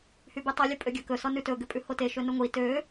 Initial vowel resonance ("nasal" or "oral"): oral